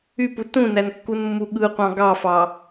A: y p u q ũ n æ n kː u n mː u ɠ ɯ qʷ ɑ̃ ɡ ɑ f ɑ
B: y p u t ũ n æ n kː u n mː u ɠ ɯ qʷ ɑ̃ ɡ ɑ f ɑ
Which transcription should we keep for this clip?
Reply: B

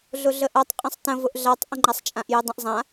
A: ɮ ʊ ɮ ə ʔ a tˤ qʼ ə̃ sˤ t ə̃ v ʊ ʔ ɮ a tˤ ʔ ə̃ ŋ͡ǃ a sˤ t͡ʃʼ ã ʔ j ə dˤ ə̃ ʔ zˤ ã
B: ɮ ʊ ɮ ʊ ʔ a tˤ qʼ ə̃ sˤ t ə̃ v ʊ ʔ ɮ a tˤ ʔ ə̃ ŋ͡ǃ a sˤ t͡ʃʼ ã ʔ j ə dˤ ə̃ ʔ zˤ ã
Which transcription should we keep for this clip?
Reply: A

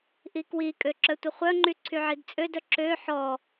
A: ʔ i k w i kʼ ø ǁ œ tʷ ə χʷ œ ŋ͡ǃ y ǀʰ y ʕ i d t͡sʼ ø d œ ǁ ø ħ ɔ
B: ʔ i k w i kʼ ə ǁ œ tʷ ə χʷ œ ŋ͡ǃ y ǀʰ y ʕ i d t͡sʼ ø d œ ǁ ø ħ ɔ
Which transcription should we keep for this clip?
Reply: A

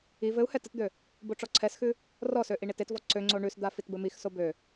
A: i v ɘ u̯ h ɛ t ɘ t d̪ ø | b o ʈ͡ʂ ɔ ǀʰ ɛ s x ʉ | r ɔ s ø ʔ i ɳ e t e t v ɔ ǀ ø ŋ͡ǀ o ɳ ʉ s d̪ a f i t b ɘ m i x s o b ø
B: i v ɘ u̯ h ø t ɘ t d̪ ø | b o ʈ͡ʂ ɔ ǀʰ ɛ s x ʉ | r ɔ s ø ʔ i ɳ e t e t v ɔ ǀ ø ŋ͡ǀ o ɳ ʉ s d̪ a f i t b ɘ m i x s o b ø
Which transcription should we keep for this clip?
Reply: A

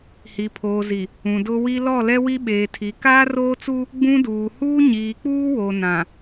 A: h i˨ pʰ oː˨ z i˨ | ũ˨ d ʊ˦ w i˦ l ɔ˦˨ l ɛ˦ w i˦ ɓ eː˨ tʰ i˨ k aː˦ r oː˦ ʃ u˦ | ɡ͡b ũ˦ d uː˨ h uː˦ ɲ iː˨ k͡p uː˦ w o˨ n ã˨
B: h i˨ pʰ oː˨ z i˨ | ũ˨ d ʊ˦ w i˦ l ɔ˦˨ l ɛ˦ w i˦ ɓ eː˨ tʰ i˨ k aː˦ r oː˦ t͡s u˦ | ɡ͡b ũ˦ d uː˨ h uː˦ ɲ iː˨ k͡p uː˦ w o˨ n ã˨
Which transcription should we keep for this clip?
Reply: B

